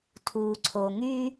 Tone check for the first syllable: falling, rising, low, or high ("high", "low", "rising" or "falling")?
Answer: low